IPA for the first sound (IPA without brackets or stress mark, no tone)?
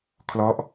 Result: kʰ